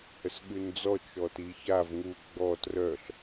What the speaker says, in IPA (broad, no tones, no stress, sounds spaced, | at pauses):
h ə s ɠ ʉ n d͡z ɔ t͡ʃ ɔ t i ç a v ŋ u ɡ͡b ɔ t r œ ɬ